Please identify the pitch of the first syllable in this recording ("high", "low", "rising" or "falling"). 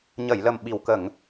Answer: low